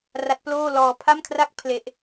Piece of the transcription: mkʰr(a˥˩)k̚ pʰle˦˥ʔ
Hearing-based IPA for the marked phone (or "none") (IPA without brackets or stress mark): a˥˩